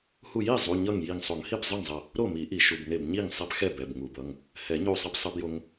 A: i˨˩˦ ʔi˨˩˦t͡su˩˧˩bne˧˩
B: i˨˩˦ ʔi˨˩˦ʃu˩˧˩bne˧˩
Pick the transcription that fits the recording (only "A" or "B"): B